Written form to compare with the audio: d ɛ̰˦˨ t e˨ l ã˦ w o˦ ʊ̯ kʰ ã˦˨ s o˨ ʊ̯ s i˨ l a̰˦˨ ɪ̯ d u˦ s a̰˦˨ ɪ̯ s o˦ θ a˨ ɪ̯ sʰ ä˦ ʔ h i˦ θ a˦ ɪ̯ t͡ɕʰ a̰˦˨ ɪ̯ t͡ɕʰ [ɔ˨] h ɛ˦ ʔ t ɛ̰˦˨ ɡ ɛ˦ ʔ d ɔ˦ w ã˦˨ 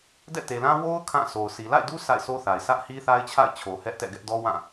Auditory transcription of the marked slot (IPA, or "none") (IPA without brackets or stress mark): o˨